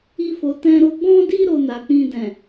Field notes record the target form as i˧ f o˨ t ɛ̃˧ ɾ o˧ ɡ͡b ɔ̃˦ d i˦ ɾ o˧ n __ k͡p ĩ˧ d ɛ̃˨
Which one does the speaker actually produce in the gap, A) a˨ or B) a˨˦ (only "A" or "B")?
A